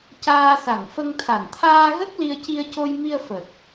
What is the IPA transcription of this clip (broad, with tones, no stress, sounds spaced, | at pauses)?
c aː˧ s a˨˩ ŋ f ə˧ ŋ t̪ʰ a˨˩ n t̪ʰ aː˧ ɣ ə˦˥ k̚ l i˧ ə̯ c i˧ ə̯ c o˧ j m i˧ ə̯ f ə˨˩ k̚